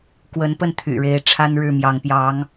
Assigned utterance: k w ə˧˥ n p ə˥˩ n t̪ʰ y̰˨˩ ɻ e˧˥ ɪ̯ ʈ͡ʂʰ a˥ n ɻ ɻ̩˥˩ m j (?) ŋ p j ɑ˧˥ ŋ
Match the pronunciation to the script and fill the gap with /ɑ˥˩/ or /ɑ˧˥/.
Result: ɑ˧˥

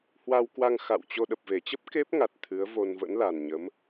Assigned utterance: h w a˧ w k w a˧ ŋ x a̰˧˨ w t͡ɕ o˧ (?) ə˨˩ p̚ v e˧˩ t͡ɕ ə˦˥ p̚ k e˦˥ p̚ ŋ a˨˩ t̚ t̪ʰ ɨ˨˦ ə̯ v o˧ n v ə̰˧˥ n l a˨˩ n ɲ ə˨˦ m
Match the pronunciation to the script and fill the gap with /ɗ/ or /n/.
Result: ɗ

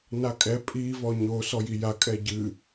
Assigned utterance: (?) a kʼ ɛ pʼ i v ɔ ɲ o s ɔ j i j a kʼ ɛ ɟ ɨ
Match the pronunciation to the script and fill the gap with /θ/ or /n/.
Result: n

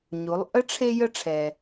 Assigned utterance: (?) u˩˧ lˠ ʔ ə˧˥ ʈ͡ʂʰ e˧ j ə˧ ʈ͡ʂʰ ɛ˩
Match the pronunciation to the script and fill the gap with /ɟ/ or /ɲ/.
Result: ɲ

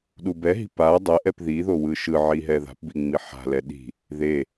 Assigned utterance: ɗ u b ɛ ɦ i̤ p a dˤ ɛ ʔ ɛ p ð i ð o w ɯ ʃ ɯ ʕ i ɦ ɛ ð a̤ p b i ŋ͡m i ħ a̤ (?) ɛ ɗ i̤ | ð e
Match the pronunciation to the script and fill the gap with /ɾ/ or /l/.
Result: l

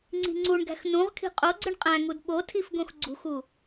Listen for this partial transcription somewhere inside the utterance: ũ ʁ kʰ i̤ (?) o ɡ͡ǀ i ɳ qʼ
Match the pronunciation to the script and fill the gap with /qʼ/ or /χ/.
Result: qʼ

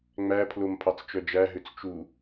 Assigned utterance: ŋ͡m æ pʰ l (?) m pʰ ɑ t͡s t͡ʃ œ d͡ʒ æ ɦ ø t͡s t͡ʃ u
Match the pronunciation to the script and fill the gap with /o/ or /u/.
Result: o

